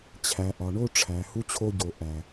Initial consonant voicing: voiceless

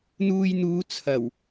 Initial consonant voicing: voiced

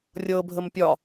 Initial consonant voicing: voiced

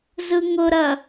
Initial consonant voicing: voiced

